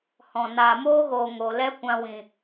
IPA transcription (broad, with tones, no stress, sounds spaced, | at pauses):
h ɔ̃˨ n aː˨ m oː˦ ɣ oː˨ ŋ o˨ l ɛ˦ kʷ ã˧ w ĩ˨